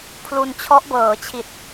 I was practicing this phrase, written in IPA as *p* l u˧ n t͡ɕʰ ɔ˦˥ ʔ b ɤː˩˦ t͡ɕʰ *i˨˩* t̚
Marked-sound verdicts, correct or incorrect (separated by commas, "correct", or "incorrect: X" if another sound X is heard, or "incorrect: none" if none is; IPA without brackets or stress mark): incorrect: pʰ, correct